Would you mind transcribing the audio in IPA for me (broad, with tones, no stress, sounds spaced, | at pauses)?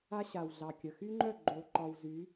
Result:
a˦ ɕ a˨ w ɮ ɑ˨ kʲ ə˨ x y˦ ŋ͡ǃ œ˦˨ ɡ͡ǃ o˨ ǃ ɒ˨ w z y˨˦